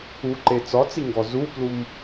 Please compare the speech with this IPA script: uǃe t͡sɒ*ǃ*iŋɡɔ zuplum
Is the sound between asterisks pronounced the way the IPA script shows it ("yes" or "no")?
no